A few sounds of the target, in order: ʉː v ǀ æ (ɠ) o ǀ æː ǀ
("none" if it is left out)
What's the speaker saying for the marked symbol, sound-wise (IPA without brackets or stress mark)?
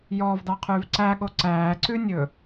ɠ